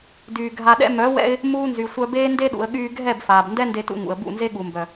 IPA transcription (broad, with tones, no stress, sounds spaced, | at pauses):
d yː˨ ɡʱ a˨ ɗ ɛ̰˧ m œ˨˦ w ɛ̰˧ ɪ̯ | m uː˧ n z y˨ sʷ œ˧ b eː˦ n d e˧ ɗ ṵ˨ ə̯ ɠ yː˧ ɡʱ ɛ˦˨ b f aː˨ b n d ɛ˦ n d e˧ t ṵ˧ ŋ ṵ˨ ə̯ b ṵ˦˨ n z e˦ ɠ u˨ m b œ˨